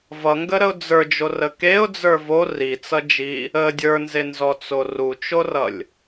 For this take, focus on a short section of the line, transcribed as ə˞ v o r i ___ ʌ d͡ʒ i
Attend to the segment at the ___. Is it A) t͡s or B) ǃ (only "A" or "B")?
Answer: A